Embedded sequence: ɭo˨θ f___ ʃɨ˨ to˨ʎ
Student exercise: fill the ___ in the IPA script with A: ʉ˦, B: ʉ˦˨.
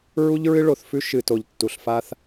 A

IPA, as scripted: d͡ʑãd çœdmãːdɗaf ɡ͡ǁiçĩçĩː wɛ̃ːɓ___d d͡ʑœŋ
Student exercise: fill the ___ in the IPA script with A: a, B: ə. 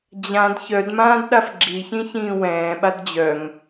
A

